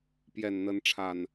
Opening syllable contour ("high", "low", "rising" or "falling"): low